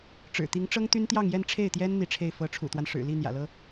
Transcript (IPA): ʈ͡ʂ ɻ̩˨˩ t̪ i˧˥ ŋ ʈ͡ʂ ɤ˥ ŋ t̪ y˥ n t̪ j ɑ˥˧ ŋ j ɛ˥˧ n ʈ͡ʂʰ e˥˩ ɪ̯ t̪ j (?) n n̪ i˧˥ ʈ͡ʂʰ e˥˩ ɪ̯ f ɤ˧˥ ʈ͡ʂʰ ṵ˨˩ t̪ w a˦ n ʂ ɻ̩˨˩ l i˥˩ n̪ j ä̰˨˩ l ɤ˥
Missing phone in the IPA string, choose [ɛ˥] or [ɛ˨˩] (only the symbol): ɛ˥